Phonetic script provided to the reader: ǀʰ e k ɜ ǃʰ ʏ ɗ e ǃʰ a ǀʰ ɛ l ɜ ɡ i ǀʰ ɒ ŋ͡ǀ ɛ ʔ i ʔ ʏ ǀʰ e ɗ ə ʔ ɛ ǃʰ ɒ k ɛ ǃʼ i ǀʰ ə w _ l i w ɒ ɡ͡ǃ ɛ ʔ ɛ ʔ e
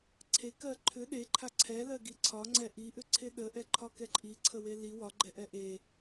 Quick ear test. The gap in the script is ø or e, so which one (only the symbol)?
e